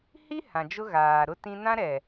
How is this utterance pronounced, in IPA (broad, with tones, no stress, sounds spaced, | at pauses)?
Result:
h i˦ h ã˨ d͡ʒ ʊ˦ ɣ aː˨ ɾ ʊ˦ t ĩ˦ n ã˦ ɾ ɛ˨